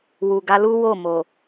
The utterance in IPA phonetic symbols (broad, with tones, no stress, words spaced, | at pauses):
wu˨ɡa˧lu˦ wo˦˨mo˨